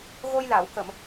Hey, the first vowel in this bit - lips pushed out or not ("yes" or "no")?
yes